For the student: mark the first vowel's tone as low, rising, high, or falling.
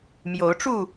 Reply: rising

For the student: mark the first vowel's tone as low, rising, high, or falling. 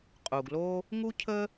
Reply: low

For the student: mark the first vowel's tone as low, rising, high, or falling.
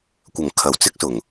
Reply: low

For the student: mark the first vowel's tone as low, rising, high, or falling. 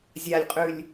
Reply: low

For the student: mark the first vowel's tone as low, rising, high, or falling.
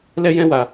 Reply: high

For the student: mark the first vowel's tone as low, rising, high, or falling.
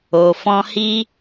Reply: low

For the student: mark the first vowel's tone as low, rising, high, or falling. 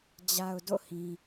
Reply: low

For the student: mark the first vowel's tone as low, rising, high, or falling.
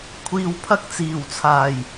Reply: low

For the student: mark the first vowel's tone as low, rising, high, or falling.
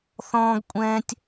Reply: high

